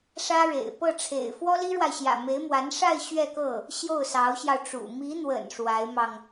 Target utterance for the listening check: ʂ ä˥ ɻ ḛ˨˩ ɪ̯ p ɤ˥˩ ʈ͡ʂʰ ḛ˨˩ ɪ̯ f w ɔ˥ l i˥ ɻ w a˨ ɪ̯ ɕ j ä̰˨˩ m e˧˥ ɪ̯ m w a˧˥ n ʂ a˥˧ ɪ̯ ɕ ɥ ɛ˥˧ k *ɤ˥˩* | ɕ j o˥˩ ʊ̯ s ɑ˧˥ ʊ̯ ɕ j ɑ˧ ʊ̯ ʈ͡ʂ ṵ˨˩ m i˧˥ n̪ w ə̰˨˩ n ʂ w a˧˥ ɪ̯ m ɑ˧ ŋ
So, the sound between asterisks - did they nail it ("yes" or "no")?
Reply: yes